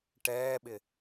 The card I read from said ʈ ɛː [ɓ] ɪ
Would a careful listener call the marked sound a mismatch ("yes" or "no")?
no